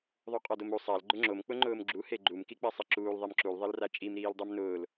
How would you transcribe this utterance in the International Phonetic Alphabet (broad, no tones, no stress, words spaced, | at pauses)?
ðˤuqʼɔdomu sˤal ɡ͡ǃʊŋ͡ǁom k͡pʊŋ͡ǃʊːmɡ͡ǁu heɡ͡ǃum kik͡pasˤeǁuːl ðˤemǁul ðˤelrat͡ʃʼim ɾiːldˤumnʊːl